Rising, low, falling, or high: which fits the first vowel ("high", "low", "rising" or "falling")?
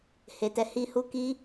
low